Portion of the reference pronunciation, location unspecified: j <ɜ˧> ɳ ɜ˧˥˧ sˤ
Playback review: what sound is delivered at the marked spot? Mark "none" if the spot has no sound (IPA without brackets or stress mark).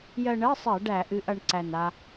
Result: ɜ˧